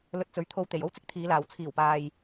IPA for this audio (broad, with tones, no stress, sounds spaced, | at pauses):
l ɵ˧ t̚ t͡s ɵ˨˧ ɥ t̪ʰ o˧ w t̪ e˨˩ j o˥ w t͡s ɪ˥ k̚ t̪ʰ iː˨˧ l aː˨ w t͡sʰ iː˨˩ w p aː˨ j